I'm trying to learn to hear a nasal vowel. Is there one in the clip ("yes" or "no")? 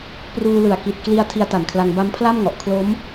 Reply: no